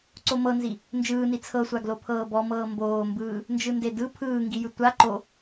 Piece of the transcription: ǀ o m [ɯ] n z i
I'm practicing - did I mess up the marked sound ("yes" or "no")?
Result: yes